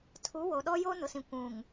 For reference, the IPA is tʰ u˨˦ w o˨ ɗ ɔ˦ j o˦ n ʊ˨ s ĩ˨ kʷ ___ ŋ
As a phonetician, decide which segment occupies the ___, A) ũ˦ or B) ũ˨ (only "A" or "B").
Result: B